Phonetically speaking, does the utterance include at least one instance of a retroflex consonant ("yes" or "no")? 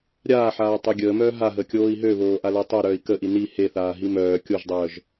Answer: no